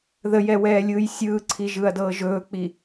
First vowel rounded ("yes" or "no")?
no